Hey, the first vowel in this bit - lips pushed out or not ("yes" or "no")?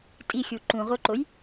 no